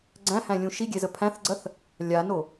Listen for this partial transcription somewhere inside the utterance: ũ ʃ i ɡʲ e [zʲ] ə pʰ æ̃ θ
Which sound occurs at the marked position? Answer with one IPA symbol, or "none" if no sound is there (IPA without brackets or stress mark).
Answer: z